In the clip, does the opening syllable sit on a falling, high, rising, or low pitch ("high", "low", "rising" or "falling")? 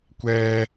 high